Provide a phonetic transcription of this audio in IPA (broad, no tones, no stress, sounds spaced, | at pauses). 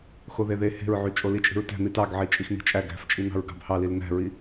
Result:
x o ð e ð e h e̤ ɹ ʕ y t͡ʃʼ o l i t͡ʃʼ i̤ ɹ t æ̤ n̪ i t ɑ ɡ ʕ i t͡ʃʼ i x n̪ i̤ t͡ʃʼ æ ɡ æ̤ f t͡ʃʼ i n̪ ɑ̤ ɹ ɡ ɑ̤ b h ɑ l i l n̪ æ̤ ɹ i